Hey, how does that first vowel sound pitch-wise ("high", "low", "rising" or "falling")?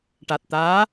low